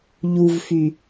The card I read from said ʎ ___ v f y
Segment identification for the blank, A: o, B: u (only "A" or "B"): B